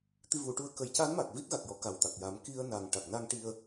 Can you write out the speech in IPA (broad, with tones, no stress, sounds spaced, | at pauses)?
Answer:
t̪ i˧ v u˨˩˦ ʈ u˧˥ ə̯ k ə˨˩˦ j c a˧˥ n m a˨˩ k̚ v i˦˥ t̚ ɣ a˨˩ k̚ j ɔ˨˩˦ k a˨˩ w t̪ a˨˩ k̚ j a˨˩˦ m k i˧ ə̯ n a˨˩ ŋ ʈ a˨˩ k̚ n a˧ ŋ ʈ i˧ ə̯